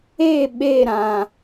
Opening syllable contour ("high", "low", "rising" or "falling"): falling